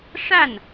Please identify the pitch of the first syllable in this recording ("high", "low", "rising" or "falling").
falling